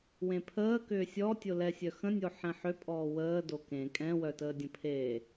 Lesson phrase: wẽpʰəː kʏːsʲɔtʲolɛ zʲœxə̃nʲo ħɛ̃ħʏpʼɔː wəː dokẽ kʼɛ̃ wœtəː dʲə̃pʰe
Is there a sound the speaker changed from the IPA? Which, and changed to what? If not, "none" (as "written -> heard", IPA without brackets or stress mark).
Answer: zʲ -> sʲ